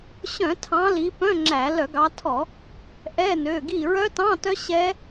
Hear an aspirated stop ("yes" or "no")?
yes